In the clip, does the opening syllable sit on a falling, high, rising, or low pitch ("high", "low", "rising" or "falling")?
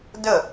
falling